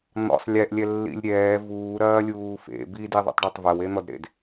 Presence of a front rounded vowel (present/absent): absent